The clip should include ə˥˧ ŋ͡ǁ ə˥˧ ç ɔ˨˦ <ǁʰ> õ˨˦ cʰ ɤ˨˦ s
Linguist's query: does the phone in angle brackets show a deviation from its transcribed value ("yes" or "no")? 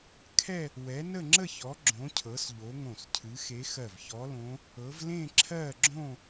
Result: yes